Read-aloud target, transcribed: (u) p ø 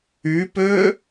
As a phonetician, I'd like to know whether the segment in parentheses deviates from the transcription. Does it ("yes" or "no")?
yes